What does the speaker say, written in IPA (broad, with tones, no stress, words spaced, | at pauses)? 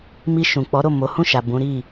mi˧ʃũ˨ k͡pɔ˨˦ ɾo˦˨ mo˨˦hũ˦˨ʃa˨ bũ˨˦ɾi˦˨